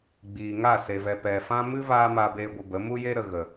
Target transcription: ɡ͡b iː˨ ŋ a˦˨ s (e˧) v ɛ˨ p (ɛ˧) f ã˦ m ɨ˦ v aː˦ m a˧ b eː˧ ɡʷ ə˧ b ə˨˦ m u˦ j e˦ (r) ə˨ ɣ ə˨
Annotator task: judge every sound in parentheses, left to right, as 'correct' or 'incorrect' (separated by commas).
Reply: incorrect, incorrect, incorrect